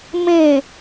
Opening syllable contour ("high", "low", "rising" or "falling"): falling